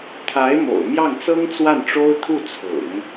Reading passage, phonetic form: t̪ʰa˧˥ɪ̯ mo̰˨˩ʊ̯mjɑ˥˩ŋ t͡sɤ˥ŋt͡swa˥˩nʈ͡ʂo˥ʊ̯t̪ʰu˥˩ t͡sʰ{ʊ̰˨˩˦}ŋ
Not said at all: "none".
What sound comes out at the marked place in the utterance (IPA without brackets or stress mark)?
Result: ʊ̰˨˩˦